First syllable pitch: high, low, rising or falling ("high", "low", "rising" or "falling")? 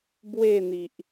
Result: falling